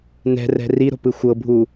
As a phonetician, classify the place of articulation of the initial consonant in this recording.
alveolar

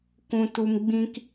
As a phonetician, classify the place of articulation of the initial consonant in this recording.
velar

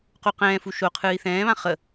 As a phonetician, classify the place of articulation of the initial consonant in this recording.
uvular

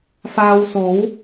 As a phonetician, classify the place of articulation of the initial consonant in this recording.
labial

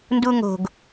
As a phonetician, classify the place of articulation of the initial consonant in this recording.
alveolar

